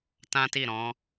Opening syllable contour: high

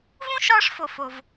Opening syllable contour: high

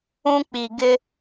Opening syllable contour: high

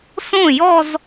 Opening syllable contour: falling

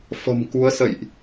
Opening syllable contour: low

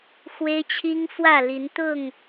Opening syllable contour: high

